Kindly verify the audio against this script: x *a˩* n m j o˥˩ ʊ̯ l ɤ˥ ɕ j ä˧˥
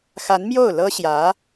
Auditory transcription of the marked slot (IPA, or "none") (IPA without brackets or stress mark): a˧˥